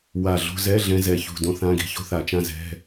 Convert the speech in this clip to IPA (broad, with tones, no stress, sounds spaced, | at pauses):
w a˨˩ ɮ o̤˧ z ɛ˧˥˧ ɮ ɛ̃˧ z ɛ˨˩ ç ṳ˨˩ d õ˧˥˧ θ ã˧˥˧ ɡ i̤˧ ç o̤˥ θ a˨˩ t͡ʃ ã˥˧ z ɛ̤˧˥˧